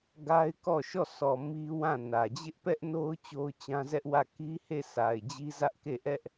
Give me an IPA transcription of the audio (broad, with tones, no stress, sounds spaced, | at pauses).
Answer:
ɡ a˦ ɪ̯ k ɔ˦˨ ʃ ɔ˦˨ s ɔ˨ m i˦ w ã˦˨ n ä˨ d͡ʑ ɪ˦ ʔ p ɛ˦ ʔ n o˦ ʊ̯ t͡ɕ o˦ ʊ̯ t͡ɕ ã˦ z ɛ˦ ʔ w ä˦˨ k i˦ h e˦˨ sʰ a˨ ɪ̯ d͡ʑ i˦ z ä˦ ʔ k e˦˨ ʔ ɛ˦ ʔ